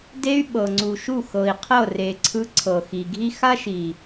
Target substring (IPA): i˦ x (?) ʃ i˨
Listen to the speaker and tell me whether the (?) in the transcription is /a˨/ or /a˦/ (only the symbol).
a˦